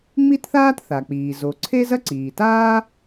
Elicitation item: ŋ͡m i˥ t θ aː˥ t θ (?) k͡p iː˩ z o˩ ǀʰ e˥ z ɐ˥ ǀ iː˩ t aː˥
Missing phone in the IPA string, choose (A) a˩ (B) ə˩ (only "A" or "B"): A